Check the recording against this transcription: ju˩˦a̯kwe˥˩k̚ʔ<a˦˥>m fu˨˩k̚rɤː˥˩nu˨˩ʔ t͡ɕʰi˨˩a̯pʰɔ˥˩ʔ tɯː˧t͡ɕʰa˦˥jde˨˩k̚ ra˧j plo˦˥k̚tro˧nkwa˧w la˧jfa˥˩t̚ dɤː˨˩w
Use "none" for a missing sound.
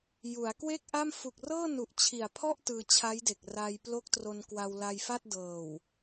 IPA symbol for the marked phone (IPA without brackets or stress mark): a˥˩